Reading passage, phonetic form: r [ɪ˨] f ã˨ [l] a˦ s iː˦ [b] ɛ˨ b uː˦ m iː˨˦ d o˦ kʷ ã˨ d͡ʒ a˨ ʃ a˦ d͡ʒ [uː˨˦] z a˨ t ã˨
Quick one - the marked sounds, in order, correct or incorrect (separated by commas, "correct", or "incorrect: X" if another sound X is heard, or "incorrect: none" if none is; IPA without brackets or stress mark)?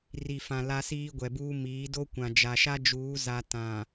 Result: incorrect: i˨, correct, incorrect: ɡʷ, correct